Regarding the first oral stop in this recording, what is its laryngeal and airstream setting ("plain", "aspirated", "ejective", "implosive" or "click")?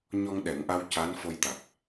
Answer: implosive